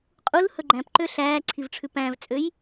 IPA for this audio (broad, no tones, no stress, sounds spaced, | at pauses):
qʼ u l h ɵ ɡ͡ǃ æ̃ p ǃ ø ɬ æː ǀʰ i v ʈ͡ʂʰ ʉ p æ̃ v t͡sʼ ø j